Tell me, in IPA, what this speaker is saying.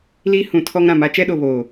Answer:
li˦ hũ˨˦tʰɔ˦ŋɾã˨ ma˦t͡ʃɛ˦ɗo˨ βoː˨

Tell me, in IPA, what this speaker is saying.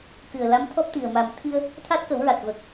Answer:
kɨ˨˩ə̯la˧˥mt̪ʰɔ˦˥p̚t̪i˨˩ə̯ ma˨˩mt̪ʰi˧ə̯ | t̪ʰa˦˥t̚kə˨˩˦wɹa˨˩t̚ və˨˩k̚

